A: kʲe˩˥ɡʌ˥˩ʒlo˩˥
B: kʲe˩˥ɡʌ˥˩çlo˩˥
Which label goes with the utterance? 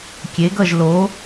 A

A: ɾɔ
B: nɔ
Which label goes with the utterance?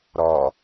A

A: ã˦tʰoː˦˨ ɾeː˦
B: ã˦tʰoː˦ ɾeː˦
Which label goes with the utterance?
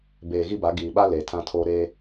B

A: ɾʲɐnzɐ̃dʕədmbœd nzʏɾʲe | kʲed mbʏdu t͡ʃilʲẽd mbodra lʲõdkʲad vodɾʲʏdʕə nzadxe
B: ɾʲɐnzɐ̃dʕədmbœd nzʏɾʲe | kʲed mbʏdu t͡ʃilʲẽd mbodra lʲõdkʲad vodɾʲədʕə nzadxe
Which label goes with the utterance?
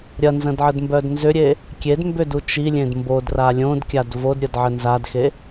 B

